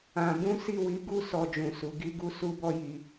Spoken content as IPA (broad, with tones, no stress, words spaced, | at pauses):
ã˧ bũ˦si˦˨wi˨˦ɡu˦ sɔ˧d͡ʒũ˨ su˨˦ ɡi˦ɡu˦ su˦bɔ˦ji˧